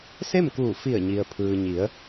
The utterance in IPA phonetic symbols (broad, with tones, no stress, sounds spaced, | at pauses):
s e˥˨ m k uː˧˩ f i˧˩ ə̯ ɲ i˩ ə̯ pʰ ɯː˩ ɲ i˩˧ ə̯